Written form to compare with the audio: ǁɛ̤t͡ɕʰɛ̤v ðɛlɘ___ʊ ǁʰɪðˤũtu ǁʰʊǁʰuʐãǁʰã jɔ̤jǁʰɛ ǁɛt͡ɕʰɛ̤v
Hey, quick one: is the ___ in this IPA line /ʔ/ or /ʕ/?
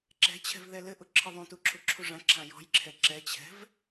ʔ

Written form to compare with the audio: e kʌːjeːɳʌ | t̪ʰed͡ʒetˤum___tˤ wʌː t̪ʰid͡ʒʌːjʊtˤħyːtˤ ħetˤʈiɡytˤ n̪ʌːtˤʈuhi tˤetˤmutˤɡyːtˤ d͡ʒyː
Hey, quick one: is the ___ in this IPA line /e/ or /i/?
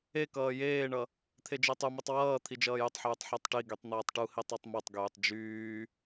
i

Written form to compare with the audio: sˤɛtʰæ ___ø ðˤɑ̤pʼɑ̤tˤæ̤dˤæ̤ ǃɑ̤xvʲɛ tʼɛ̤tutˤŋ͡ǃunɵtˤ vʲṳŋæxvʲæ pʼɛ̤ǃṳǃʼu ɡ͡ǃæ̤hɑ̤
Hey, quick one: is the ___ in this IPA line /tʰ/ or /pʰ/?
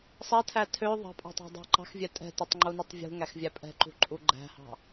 tʰ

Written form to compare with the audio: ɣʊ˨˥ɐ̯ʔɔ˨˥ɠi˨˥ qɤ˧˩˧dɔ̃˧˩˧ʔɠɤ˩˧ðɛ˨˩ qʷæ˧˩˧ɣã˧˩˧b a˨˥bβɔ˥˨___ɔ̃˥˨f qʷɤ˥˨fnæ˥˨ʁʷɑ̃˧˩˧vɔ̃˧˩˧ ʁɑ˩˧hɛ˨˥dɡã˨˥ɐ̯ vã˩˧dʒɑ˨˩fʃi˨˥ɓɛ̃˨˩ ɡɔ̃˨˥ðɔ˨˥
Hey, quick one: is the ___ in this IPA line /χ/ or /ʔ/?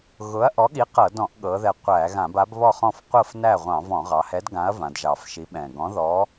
χ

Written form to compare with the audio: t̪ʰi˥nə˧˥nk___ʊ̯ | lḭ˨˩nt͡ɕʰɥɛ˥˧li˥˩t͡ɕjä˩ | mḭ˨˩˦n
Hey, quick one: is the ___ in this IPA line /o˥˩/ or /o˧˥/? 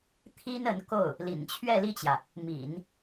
o˥˩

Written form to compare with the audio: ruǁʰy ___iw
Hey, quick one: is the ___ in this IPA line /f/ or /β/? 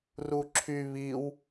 β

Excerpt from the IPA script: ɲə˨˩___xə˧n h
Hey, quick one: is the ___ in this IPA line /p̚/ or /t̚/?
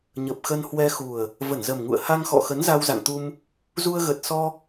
p̚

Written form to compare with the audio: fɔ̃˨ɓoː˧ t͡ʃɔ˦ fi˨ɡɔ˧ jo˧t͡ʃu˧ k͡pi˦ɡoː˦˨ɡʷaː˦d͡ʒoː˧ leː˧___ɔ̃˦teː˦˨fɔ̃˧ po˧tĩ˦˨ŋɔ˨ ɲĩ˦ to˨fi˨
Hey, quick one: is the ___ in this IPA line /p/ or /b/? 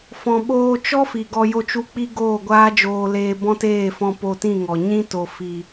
b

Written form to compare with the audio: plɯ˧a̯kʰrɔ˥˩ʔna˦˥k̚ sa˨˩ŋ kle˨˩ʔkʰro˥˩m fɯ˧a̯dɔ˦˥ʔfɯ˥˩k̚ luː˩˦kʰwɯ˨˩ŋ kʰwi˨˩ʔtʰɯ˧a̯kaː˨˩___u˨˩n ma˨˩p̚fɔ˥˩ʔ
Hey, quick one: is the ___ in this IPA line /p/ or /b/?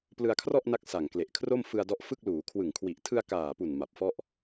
p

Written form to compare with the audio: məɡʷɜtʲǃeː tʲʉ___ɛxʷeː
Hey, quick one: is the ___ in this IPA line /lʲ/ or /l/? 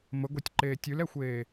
l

